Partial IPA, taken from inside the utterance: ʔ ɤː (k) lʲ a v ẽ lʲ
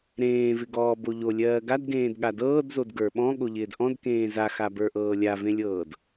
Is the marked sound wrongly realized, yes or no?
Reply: yes